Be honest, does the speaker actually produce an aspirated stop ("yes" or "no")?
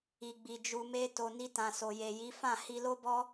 no